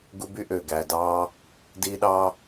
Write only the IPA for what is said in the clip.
ɡ u˧ b y˧ ʔ øː˨ ɡ æː˨ d ɑː˧ | d iː˧ ɗ ɑː˧

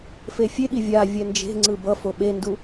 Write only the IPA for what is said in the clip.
f e fʲ e ɠ i vʲ a vʲ ɛ n d͡ʒ e̤ ŋ͡ǀ ɯ b ʌ f o ɓ e n d u

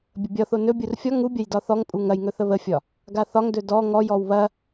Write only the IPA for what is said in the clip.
bʲ ə bʲ ɒ θ o n ɵ bʲ u r fʲ ɒ ŋ u bʲ ɐ j d ɒ θ ɔ ŋ pʼ u ŋ ɐ j ŋ ɵ θ ə β ə fʲ ɒ | ɡ a θ ɒ ŋ d ɵ d ɔ ŋ ɔ j ɔ w β ɐ

